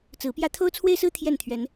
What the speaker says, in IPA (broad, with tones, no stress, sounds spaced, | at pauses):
t͡s ɹ̩˨˦ p j ä˦ t̪ʰ o˦ ʊ̯ t͡sʰ w e˦ ɪ̯ s ɹ̩˦ t̪ʰ j ɛ˥˨ n t̪ʰ ɥ ɛ˨˦ n